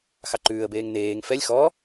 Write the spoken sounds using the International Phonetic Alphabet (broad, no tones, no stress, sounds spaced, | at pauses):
x ɑ ǃ ʉː ə̯ b eː ŋ n eː ŋ f ɛ lʲ x ɔ